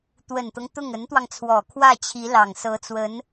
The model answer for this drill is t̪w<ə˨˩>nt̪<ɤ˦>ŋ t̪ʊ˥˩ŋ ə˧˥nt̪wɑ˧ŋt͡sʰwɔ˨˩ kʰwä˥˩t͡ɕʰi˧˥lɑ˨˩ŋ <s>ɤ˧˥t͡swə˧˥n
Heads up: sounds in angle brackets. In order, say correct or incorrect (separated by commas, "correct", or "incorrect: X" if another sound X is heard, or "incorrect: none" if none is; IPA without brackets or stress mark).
correct, correct, correct